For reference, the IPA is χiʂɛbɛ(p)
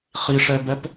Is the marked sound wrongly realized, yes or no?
no